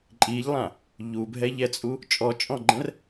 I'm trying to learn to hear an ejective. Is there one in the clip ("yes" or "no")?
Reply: yes